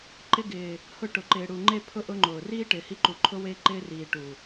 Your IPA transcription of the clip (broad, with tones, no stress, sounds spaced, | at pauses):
ǃ ɪ˧ ɡ ɪː˨ | h ʊ˧ ʈ ʊ˨ ǃ ɪː˨ ɽ u˨ ŋ͡ǃ e˧ pʰ ʊ˧ ʔ ʊ˧ ŋ͡ǃ ʊː˨ r iː˦ ʈ ɪː˨ h i˧ ǃ u˨ ǃʰ ʊ˧ w e˧ ǃ ɪː˧ r iː˨ ʈ u˨